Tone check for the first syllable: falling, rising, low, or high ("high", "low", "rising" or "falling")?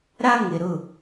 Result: high